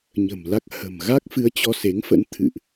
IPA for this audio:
ɲə̤˨˩mla˦˥k̚ hə̤˨˩m ɣa˦˥k̚fɨ˨˦ə̯ t͡ɕɔ˧se˨˦ŋfə̰˧˥nt̪ʰɨ̰˧˨ʔ

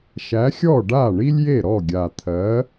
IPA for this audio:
ʃæ˨˥xʲɔ˥˩ ɖa˥˩ɳi˥lʲje˥˩ɾɔ˥˩ ɡʲa˨˩t̪ʰɜ˨˥

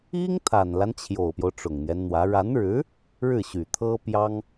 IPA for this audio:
i˥ŋ t̪ʰa˨˩nla˦n t͡ɕʰjo˨˩ʊ̯pjo˦ʊ̯ ʈ͡ʂʊ˨˩ŋn̪jɛ˦nn̪wä˧˥ ɻa˧˥nɻɻ̩˧˥ | ɻɻ̩˥˩ɕy˨˩t̪ʰɤ˥ pjɑ˥ŋ

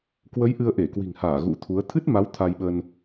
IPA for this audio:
kwə˨˦j ʔɨ˧ə̯ʔe˧˩kwi̤˨˩ŋhaː˧˩ ɣṵ˧˥t̪ʰu˨˦ə̯ t̪ʰɨ˦˥t̚ ma˨˦w t̪ʰa˧jɓə˧n

